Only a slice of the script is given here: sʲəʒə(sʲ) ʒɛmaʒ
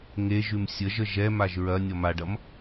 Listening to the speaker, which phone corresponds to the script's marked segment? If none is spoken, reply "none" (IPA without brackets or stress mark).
none